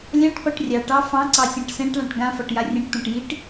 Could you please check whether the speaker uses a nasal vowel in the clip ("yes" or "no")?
yes